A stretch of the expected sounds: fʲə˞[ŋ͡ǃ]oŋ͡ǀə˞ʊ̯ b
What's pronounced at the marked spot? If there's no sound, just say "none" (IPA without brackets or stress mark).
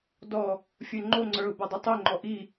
ŋ͡ǃ